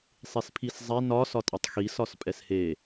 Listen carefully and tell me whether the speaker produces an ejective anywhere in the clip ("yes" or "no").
yes